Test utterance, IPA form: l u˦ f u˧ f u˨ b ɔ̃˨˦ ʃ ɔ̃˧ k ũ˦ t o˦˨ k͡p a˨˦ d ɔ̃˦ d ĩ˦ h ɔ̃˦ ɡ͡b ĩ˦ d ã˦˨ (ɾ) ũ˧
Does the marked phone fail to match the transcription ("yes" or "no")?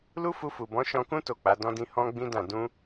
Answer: yes